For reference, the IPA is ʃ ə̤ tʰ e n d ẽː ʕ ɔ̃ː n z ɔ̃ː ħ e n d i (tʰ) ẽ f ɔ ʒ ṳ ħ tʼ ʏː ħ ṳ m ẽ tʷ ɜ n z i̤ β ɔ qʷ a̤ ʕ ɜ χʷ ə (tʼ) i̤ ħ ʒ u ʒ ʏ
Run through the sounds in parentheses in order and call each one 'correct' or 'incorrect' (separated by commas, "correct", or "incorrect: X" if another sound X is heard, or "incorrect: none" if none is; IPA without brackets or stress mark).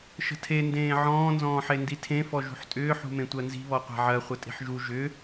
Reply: correct, correct